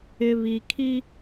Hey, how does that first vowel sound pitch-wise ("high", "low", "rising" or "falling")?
low